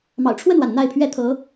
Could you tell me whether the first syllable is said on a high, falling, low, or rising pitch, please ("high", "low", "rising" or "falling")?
low